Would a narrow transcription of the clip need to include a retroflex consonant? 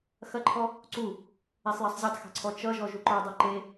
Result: no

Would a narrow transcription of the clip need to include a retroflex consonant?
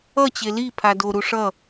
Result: yes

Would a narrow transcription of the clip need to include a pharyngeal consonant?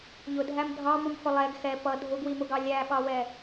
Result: no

